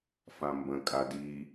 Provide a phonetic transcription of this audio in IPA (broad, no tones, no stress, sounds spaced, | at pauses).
f ã m b ə̃ kʼ a d i